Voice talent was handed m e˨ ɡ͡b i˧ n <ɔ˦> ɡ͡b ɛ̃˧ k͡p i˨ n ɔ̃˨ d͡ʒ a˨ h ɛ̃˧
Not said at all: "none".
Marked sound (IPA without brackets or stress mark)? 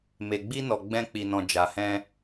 ɔ˨